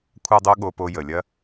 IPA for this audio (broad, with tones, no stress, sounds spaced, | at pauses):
kʷʰ a˥ dˤ o˥ ɠ o˧ p o˧ j ə˩ lʲ ɐ˥